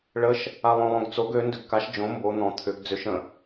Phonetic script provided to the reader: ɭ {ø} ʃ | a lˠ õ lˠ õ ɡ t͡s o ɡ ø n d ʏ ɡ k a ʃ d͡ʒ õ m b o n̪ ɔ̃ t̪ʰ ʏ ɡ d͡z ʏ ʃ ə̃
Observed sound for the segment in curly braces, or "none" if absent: ə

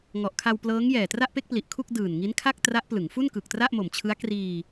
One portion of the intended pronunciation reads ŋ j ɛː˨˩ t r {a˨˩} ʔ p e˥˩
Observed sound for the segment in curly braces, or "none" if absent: a˥˩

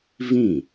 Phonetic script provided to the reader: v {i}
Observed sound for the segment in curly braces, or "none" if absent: ĩ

